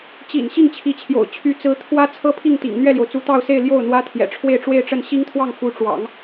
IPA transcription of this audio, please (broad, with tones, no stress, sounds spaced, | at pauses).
t͡ɕ ḭ˨˩ n ɕ i˥˩ ŋ t͡ɕʰ i˧˥ t͡ɕʰ j o̰˨˩ ʊ̯ t͡ɕʰ y˧˥ t͡s ɹ̩˧˥ t̪ʰ w ä˥ t͡sʰ ɤ˥ pʰ i˥˩ ŋ t̪ ḭ˨˩ ŋ n̪ ɥ ɛ˥˩ l j o˩ ʊ̯ t͡s u˧˥ t̪ ɑ˥˧ ʊ̯ s e˥˧ ɪ̯ l j o˥˩ ʊ̯ n̪ w ä˥ t̪ʰ j ɛ̰˨˩ ʈ͡ʂʰ w e˥˧ ɪ̯ ʈ͡ʂ w e˥˧ ɪ̯ ʈ͡ʂ ə˥˩ n ɕ i˥ ŋ t̪ʰ w ɑ˥˩ ŋ f u˧˥ ʈ͡ʂ w ɑ̰˨˩˦ ŋ